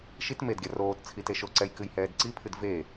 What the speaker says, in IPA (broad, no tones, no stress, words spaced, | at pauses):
ʃit medɡʲa roːt t͡sʰiteʃoǀɛj kɨjhɛːdǀipʰɨd ve